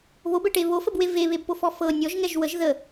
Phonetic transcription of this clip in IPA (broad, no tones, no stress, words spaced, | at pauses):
βobɛʈe βofəbwe veβebpofɔ fɤ nʲɔʒŋɛʒ wəʒ ðə